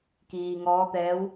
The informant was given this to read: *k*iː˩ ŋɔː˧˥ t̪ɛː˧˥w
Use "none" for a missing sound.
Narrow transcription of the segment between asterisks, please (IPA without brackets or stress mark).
k